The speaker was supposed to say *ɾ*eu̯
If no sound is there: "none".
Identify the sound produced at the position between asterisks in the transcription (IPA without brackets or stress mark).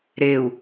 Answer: ɾ